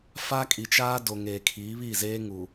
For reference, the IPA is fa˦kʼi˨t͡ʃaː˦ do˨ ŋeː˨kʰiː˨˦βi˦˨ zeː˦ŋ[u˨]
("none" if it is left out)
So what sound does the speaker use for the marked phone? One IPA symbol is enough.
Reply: u˨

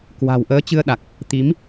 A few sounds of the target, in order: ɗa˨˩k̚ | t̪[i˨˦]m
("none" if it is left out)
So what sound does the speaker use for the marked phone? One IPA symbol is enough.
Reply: i˨˦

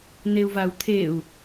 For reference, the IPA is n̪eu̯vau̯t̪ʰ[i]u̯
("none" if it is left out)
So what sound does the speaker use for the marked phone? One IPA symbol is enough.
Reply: e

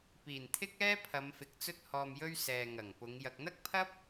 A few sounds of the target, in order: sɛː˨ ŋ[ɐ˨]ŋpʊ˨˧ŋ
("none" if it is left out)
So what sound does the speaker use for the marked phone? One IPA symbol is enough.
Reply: ɐ˨˩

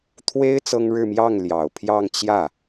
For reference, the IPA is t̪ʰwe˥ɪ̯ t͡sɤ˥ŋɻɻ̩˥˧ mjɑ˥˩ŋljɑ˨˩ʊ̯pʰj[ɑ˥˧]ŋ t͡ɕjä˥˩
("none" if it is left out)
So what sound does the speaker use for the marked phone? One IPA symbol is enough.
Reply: ɑ˥˧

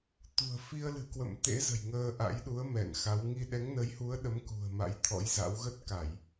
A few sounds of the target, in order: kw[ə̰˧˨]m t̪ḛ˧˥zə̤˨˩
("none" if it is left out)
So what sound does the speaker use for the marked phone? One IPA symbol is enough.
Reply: ə̰˧˨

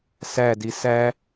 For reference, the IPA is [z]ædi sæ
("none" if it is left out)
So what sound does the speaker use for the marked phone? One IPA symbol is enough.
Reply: s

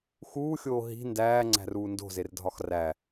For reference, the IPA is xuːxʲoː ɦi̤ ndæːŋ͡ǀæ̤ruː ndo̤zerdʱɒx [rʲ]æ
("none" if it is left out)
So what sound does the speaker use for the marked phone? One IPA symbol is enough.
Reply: r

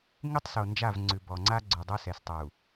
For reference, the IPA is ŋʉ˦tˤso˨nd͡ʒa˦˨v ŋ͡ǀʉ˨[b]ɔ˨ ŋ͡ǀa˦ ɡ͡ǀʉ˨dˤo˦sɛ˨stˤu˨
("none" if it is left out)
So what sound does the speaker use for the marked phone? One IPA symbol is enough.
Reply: b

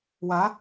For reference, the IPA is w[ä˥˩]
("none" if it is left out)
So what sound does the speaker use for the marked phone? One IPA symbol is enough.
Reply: ä˧˥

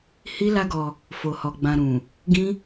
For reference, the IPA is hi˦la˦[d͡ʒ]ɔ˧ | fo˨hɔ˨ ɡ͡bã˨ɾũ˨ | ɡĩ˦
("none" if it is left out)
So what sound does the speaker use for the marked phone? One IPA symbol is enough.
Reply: ɡ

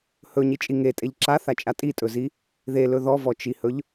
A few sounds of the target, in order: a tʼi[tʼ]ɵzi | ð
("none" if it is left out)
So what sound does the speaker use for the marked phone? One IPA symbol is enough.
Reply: tʼ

